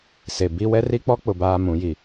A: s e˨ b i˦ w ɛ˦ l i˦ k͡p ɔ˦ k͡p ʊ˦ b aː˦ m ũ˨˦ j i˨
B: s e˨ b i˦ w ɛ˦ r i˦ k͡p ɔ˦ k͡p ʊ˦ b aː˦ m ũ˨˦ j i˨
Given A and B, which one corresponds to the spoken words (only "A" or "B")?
B